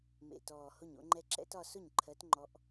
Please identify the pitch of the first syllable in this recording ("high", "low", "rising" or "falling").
low